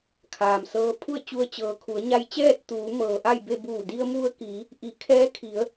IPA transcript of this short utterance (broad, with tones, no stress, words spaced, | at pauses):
kʰaː˩msɤː˧˥ pʰu˥˨ə̯t͡ɕu˧ə̯ t͡ɕɤː˩kʰu˩˧ə̯ɲa˧jt͡ɕɛː˥˨t̚ t̪uː˩˧ mɤː˩ʔa˥˨jbe˥˨ buː˧˩di˧ə̯mu˧ə̯ki˩˧ | ʔi˩˧ kʰɛː˧˥kʰi˩˧ə̯